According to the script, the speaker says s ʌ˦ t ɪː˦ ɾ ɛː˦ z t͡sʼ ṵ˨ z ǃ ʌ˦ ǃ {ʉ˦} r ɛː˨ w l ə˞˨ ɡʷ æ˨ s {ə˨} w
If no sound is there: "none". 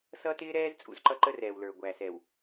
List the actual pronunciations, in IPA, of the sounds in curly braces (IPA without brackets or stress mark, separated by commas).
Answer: ə˦, ɛ˨